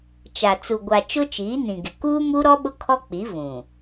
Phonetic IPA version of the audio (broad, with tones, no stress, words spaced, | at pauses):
t͡ʃa˨ t͡su˨ɡʷa˨ t͡ʃʊ˦t͡ʃiː˨˦nĩ˨ɡɪ˨ kuː˦mu˦ɾɔ˦ ɓʊ˦kʰɔ˦k͡pi˨˦ vũ˨